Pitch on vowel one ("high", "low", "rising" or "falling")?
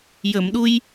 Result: low